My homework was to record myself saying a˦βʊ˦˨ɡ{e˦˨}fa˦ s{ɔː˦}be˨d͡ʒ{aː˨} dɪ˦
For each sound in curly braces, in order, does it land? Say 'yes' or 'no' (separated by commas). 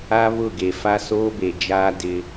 no, no, no